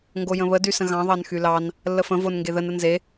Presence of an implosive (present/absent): absent